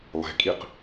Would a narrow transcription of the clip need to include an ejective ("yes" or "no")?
yes